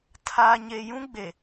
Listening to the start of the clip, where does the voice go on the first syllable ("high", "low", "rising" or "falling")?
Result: low